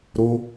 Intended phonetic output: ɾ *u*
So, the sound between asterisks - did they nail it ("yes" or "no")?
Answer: no